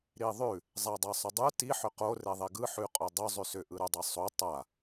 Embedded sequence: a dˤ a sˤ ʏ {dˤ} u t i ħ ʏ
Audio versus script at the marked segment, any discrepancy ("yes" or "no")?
no